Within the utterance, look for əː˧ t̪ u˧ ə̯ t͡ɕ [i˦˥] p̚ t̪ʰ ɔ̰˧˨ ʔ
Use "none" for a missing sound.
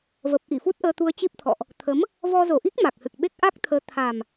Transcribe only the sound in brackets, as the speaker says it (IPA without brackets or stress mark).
i˦˥